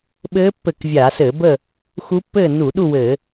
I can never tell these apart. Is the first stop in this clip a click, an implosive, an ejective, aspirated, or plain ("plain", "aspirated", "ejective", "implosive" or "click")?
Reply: implosive